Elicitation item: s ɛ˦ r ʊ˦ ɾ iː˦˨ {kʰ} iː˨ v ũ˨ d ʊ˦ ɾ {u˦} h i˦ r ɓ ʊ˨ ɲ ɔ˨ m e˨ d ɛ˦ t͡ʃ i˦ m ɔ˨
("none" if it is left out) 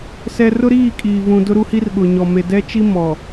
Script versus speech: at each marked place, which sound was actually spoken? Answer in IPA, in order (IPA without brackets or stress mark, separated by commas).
kʼ, u˦